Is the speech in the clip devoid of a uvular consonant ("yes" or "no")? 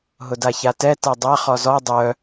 no